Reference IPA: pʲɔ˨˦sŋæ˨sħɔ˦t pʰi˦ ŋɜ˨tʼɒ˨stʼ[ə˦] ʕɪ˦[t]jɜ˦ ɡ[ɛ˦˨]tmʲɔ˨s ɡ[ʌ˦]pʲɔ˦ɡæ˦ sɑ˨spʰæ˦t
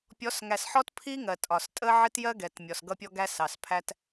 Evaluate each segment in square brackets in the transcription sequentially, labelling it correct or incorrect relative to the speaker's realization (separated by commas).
correct, correct, incorrect, correct